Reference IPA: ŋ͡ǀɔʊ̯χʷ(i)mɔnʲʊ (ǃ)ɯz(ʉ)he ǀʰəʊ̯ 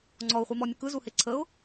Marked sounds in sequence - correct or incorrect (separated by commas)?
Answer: incorrect, incorrect, incorrect